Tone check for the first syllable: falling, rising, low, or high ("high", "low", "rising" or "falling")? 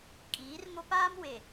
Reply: rising